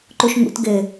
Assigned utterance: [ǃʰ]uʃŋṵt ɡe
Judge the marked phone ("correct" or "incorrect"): incorrect